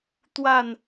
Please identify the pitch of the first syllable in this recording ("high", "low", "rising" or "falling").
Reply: falling